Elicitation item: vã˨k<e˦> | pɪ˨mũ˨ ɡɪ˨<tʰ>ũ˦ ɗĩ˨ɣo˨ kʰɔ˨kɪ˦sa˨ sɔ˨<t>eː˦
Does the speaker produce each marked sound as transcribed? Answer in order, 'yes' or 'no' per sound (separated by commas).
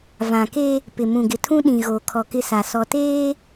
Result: yes, yes, yes